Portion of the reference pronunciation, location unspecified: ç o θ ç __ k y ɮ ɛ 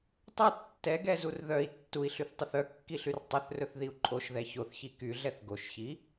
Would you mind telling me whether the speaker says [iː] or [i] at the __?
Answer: i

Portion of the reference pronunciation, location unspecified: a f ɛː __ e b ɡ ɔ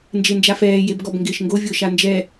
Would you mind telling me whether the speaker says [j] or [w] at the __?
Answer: j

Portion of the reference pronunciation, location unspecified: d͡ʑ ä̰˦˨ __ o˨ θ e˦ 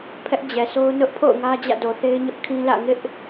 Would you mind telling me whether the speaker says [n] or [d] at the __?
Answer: d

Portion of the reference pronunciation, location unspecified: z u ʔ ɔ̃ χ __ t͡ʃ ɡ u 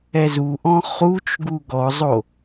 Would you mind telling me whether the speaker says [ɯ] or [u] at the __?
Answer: u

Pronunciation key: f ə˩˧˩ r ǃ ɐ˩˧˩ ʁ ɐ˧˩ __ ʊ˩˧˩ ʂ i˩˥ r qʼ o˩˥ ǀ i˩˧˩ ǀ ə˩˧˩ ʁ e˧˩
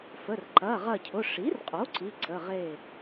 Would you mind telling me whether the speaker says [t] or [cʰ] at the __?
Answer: cʰ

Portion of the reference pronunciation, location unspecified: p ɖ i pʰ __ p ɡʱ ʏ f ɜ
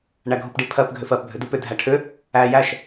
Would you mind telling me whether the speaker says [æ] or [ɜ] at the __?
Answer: ɜ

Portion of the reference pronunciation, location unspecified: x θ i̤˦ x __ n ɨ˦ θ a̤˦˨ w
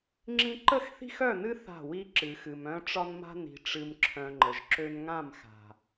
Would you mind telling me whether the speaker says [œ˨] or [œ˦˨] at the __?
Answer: œ˦˨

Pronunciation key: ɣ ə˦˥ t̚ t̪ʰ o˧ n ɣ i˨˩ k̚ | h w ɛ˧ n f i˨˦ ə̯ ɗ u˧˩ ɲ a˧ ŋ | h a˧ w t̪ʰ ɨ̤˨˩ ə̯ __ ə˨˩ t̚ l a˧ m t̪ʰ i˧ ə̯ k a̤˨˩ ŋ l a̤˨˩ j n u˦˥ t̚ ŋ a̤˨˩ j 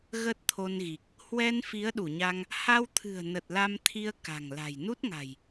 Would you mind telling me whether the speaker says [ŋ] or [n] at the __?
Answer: n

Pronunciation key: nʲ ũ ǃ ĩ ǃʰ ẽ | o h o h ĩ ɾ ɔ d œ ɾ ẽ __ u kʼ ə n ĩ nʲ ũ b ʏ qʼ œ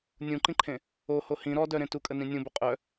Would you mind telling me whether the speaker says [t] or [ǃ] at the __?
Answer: t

